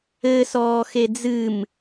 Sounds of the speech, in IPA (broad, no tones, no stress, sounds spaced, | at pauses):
ɘ s ɔː x e d͡z ɨ m